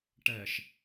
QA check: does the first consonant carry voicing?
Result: no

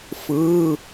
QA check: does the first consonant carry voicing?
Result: no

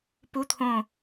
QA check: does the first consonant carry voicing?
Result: no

